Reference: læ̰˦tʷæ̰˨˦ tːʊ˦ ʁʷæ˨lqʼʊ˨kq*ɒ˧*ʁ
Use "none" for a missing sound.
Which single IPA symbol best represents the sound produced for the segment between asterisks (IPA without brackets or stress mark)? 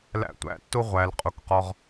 ɒ˧